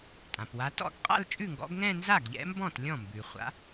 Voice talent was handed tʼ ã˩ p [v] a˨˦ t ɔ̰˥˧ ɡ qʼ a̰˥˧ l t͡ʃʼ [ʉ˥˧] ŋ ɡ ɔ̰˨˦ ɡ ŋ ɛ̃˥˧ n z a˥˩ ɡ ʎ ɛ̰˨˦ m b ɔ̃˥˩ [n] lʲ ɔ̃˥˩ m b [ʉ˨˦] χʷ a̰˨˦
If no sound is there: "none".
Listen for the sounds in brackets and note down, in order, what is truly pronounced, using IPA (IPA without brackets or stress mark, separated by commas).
w, ʉ˥˩, t, ʉ˩